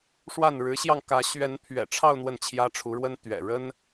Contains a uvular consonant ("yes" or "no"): no